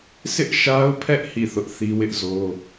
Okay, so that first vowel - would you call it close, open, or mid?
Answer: close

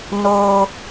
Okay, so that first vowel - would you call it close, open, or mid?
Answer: mid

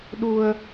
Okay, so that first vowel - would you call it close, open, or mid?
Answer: close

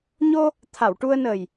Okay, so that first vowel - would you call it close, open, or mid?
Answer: mid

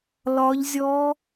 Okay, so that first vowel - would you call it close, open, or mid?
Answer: open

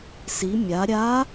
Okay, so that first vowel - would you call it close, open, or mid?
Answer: close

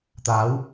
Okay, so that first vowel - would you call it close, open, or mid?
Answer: open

